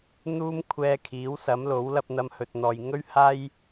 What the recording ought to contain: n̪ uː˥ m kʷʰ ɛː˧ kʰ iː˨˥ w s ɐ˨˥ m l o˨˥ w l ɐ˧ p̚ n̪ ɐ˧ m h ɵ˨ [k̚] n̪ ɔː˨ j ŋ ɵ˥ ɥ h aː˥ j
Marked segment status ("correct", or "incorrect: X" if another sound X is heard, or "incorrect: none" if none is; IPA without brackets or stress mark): incorrect: t̚